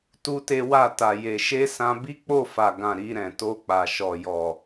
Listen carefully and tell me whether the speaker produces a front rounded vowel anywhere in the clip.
no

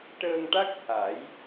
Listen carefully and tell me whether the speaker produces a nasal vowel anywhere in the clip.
no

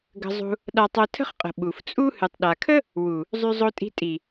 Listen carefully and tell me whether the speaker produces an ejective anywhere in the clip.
yes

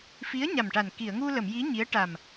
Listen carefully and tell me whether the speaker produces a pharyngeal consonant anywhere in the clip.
no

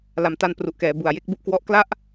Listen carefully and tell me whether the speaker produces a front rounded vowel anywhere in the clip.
no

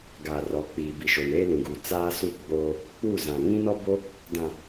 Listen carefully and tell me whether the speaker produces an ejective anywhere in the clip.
no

